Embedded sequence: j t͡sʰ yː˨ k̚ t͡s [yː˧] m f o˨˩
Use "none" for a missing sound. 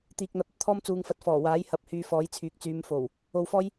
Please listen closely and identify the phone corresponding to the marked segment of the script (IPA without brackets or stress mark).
yː˨˧